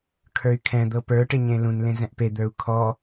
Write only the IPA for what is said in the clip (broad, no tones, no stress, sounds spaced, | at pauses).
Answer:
kʰ ə˞ y̯ kʰ ɛ̃ d̪ ɤ p ə˞ ʈ ɪ ɲ ẽ l ũ n l ẽ z ɛ̃ ʔ p e d̪ ə˞ u̯ kʰ ɔ